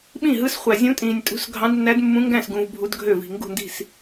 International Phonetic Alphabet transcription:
ɓ ĩ˥˩ ɦ ɯ˧˥ s χʷ æ˨ zʲ ũ˧˥ tʼ ĩː˨ nʲ tʼ ṳ˧˥ s ɡʱ ɑ̃˧˥ d nː æ˧˥ d mː ũ˧˥ ŋ ɡ æ̃˥˩ s ɡ ũ˨ v bʱ u˧˥ d ɡʱ ø˥˩ v i̤˨ ŋ ɡ ṳ˥˩ n d i̤˥˩ s

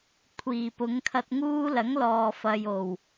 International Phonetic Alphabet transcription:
kʷʰ iː˨˩ p ʊ˨˧ ŋ kʰ ɐ˧ t̚ ŋ uː˥ l ɐ˨˥ ŋ l ɔː˨ f ɐ˨ j o˨˩ w

